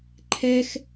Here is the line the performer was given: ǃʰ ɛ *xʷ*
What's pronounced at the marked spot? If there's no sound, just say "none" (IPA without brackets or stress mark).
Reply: x